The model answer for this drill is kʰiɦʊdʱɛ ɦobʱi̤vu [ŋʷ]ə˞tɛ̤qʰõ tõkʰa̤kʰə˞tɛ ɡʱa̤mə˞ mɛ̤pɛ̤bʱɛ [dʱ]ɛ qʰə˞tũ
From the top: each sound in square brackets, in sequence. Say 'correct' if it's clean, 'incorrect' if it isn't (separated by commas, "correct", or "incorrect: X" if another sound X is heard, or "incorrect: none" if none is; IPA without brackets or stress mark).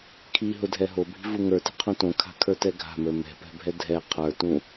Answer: incorrect: ŋ, correct